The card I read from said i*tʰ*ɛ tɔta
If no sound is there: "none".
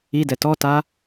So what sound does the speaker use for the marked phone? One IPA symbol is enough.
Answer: d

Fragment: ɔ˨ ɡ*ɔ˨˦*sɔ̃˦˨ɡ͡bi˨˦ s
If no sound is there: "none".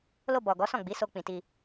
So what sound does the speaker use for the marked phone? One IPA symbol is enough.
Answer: ɔ˨˦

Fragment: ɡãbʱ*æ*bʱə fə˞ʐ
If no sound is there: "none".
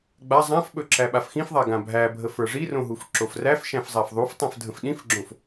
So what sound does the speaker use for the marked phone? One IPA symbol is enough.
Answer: æ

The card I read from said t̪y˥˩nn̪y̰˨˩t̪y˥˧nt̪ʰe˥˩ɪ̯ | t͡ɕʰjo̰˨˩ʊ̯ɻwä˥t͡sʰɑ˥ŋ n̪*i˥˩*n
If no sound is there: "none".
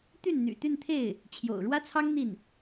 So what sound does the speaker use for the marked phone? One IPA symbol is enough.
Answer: i˥˩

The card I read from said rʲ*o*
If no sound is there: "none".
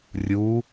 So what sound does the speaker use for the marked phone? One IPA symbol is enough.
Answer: u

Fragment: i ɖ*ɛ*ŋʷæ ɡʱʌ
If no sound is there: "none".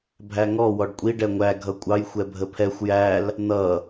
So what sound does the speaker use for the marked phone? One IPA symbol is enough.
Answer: ɛ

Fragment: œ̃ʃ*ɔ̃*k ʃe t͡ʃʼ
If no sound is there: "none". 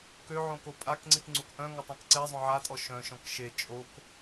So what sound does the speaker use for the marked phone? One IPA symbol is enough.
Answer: ɔ̃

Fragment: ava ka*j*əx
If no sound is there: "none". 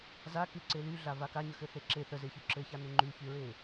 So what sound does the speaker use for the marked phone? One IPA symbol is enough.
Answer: ɲ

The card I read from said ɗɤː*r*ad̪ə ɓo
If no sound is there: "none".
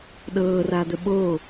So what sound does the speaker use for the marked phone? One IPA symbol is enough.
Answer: r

